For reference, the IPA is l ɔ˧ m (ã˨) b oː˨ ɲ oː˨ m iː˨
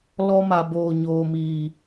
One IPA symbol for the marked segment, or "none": a˨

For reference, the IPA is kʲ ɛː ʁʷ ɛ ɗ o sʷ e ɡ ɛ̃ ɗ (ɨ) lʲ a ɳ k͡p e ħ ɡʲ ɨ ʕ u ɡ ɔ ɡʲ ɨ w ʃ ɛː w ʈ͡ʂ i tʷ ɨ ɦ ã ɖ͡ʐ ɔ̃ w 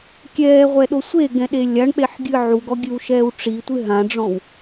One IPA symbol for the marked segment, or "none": e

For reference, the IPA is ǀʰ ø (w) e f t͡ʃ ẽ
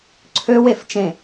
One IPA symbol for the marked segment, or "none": w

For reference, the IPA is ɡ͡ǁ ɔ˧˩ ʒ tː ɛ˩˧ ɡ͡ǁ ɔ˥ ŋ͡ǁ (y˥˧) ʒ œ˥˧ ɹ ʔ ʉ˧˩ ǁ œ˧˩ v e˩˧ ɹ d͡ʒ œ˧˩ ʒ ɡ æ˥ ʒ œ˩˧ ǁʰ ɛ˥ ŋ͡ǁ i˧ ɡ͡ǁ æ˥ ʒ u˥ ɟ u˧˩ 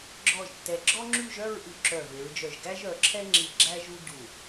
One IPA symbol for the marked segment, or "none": y˥˧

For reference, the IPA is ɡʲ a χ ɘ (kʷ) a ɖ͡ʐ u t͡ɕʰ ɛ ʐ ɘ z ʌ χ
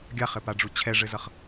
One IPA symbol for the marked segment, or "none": p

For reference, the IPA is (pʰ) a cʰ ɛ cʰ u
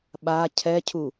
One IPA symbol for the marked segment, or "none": ɓ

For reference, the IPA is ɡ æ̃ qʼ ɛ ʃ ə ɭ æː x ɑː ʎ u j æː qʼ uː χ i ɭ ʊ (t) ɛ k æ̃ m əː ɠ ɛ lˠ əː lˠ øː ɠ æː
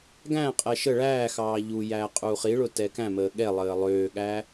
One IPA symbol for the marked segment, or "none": t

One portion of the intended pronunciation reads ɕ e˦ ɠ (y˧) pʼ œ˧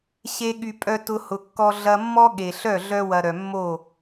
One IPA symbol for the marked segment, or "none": y˧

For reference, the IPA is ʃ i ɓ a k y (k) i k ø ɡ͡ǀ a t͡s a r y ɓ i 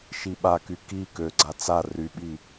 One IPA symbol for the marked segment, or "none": k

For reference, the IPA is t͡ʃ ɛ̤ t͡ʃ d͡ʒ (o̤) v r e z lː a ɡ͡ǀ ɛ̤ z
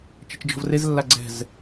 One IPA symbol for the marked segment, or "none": ɔ̤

